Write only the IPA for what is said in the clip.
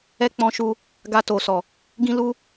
ɛ˦ k͡pɔ̃˧ʃu˧ | ɡa˧to˨sɔ˨ | ɡĩ˦lu˦

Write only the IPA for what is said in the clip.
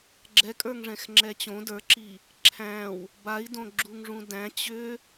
ɡ͡ǁɛkʼə˞ŋʐɛ̃xŋ͡ǁɛ t͡ɕõ də˞ǁi | ǁʰæ̃w | bai̯dõɡ͡ǁuŋʐũ dæ̃ t͡ɕʏ

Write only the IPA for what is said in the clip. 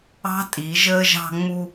ɑ̤˦tʼi˨˦ ʒəː˧ʒɑ̤˧ŋ͡mu˧

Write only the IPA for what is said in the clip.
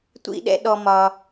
tʷḭ˦ɗɛ̰˦ ɗɔ˧mɒ˧

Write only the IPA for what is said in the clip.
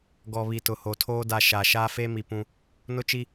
ɡɔ˨βi˨ tʊ˨ho˨tʰoː˦ da˨ ʃa˨ ʃaː˦feː˦mi˨ pũ˦ | nʊ˦t͡ʃi˦

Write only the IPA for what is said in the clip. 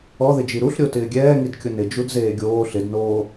ɔðɪd͡ʒi ɾuɬɾʲo tɪːɡʲɛːŋid kʲʊnɪ d͡ʒudzeːɡʲoː ɬɪdnoː

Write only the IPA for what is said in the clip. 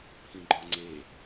pʰĩɡ͡ǃɒŋ͡ǀe

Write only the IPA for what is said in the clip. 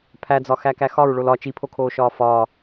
pʰæd͡zɒxækæ xɒɹɭol ɒ t͡ʃipʰokʰoːʃɒː fɒː

